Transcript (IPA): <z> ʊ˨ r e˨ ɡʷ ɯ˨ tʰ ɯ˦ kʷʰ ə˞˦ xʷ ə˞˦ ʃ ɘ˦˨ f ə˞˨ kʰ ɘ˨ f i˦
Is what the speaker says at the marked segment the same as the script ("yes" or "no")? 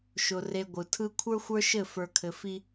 no